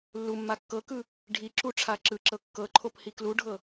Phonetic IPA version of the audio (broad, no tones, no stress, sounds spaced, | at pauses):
lː u mː a kː ɤ k ɯ | ɖʱ i ǁ u ʈ͡ʂʰ a ǁ ɯ ǁ ɤ kː ɤ ǃʰ o p h i k l u ɖʱ ɤ